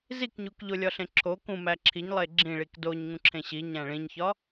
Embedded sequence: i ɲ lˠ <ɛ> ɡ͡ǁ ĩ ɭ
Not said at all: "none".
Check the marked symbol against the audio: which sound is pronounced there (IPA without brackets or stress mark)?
e